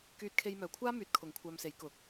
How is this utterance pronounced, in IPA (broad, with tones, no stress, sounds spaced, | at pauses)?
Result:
k yː˧ t̚ kʰ e˧ j m œː˨ kʷʰ aː˥ m yː˨˥ t̚ kʰ ʊ˨˥ ŋ kʷʰ œː˧ m s e˨˥ j k ʊ˨ k̚